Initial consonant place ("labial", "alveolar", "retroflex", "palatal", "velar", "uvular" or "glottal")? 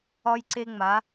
palatal